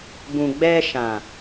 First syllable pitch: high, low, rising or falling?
low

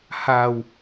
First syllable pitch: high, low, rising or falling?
low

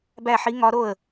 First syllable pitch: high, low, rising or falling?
falling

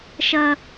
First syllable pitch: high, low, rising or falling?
high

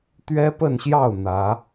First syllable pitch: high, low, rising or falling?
high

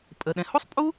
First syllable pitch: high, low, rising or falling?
low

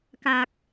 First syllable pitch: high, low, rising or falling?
low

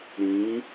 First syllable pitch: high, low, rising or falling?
rising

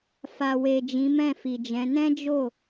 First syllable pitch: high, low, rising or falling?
low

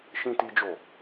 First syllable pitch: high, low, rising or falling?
high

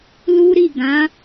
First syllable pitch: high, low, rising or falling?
high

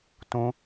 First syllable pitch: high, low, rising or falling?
high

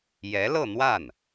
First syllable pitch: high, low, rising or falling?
rising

